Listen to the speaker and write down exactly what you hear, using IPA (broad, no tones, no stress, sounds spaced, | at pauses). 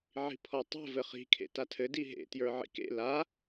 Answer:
ʕ i̤ pʰ ɔ tˤ ɛ̤ v ɘ χ i̤ kʰ ḛ t a tʰ ɘ d i ɦ ḛ t j ə˞ ʕ ḭ k ḛ l a